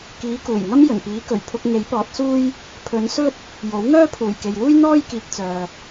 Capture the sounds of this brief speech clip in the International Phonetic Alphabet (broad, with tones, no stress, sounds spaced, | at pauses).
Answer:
k iː˨˧ k uː˨˩ j ŋ ɐ˥ m j ɵ˨˩ n p iː˨˥ k ɵ˨˩ ɥ pʰ ʊ˧ k̚ ŋ e˨˥ j p ɔː˨˥ t̚ s uː˥ j | pʰ ɵ˨˧ n s ɵ˥ t̚ | j o˨˥ w ŋ œː˥ pʰ uː˨˩ j k e˨ j w uː˥ j n̪ ɔː˥ j k iː˨ k̚ t͡s œː˨